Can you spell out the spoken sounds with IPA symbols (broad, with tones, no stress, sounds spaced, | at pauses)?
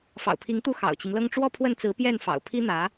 f ɑ̰˨˩ ʊ̯ pʰ i˧˥ ŋ t̪ u˥˩ x ɑ̰˨˩ ʊ̯ t͡ɕ i˦ ŋ l ɤ˥ ŋ ʈ͡ʂ w ɔ˥˧ pʰ w ə˥˩ n t͡s ɹ̩˧˥ p j ɛ˥˩ n f ɑ̰˨˩ ʊ̯ pʰ i˥ n̪ ä˧˥